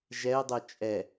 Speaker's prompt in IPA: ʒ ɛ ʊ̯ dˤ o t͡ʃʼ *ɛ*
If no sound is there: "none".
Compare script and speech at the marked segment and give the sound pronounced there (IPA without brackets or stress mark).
ɛ